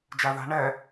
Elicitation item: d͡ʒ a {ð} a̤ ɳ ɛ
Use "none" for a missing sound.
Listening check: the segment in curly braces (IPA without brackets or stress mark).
ð